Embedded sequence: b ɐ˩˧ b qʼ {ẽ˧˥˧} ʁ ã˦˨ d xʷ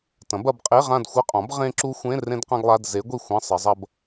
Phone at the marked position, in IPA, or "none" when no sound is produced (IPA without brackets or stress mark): e˧˥˧